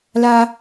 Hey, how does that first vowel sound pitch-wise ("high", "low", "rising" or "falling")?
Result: high